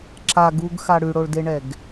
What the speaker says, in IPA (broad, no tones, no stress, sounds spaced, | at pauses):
ǁ a ɡ u ɡ x a ɽ ʉ ɽ o ɭ d e ɳ ɛ ɡ